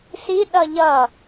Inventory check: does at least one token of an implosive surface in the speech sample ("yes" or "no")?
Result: yes